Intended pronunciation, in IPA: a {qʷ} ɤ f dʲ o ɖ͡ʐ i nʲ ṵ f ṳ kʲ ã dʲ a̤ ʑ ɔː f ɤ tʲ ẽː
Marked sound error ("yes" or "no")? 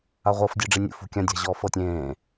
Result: yes